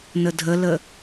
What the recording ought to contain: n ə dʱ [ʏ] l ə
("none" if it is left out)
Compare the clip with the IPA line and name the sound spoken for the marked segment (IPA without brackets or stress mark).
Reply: ə